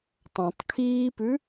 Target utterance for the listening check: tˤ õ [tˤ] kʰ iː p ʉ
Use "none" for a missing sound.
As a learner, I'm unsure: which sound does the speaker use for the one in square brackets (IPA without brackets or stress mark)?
tˤ